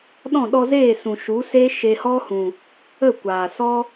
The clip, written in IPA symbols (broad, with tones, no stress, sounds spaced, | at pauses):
ɗ ɔ̃˦˨ ɗ ɔ˧ z eː˦˨ s ũ˨ ʃ u˨˦ s e˦ ʃ e˧ h ɔ˦ h ũ˨ | ə˦˨ kʷ aː˨ s ɔ˦